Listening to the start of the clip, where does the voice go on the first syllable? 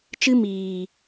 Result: high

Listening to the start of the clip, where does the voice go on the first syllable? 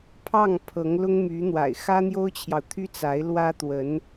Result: falling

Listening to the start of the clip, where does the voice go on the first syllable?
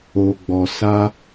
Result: low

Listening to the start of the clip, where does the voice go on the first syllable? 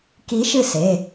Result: rising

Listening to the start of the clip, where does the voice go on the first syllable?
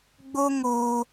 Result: high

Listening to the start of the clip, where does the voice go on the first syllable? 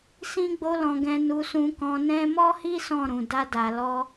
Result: high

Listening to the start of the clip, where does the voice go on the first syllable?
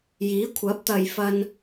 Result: rising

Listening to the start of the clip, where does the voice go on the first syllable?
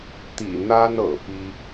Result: low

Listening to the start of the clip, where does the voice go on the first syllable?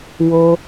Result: low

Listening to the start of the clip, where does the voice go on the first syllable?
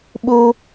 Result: high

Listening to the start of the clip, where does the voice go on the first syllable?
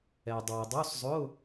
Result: low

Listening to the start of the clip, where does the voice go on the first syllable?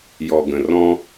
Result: low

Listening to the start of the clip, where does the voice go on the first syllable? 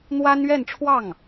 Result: high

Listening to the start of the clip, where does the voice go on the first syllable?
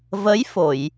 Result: rising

